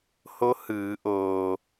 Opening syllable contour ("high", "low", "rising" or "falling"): rising